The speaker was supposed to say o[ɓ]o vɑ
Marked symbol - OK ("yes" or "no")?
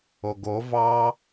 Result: no